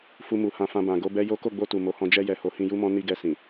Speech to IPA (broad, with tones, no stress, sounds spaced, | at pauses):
f u˧ m u˨ h ã˧ f ã˧ b ã˨ ɡ o˨˦ b ɛ˦ j o˦ k o˦˨ ɡ͡b o˧ t u˨ m o˨˦ h ɔ̃˧ d͡ʒ ɛ˧ j ɛ˨ h o˨˦ h ĩ˧ j u˦ m ɔ̃˦ n i˧ ɡ ɛ˧ s ĩ˨